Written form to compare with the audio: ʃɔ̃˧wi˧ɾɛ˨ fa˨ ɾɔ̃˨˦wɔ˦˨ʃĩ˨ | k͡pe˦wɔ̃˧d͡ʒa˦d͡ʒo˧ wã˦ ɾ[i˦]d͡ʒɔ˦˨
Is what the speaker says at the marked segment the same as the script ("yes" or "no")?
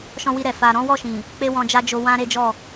no